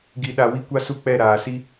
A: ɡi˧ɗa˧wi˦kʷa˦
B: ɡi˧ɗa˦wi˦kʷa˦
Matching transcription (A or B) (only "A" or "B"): A